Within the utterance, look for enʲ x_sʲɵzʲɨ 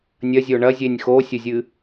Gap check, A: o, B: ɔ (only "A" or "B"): A